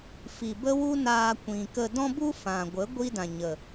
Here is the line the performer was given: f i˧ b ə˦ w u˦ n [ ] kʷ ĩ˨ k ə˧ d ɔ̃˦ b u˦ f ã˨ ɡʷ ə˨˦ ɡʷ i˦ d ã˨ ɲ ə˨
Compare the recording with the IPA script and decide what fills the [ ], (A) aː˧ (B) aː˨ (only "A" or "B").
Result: A